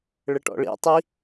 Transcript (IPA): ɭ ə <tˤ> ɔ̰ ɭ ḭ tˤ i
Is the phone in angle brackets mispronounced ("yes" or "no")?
yes